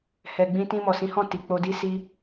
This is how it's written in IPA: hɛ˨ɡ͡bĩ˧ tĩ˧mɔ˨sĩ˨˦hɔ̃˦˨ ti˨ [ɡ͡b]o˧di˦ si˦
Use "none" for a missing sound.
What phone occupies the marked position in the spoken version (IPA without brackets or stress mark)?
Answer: k͡p